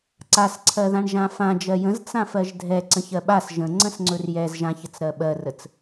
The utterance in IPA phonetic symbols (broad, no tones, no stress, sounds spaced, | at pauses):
ǀ a s ǀʰ ɜ ð ã ɳ ʒ ã f ã d͡ʒ ɜ j ə̃ z t͡s ã f ɜ ʒ dʱ ɛ ǀ ə̃ ç ɜ ɓ a s ʒ ə̃ ŋ͡ǀ ə̃ s ŋ͡ǀ ɵ r j ɛ z ʒ ã ç ə t͡s ɾ ɜ ɓ ɜ r ə t͡s